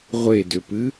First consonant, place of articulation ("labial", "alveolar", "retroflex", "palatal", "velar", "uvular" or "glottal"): uvular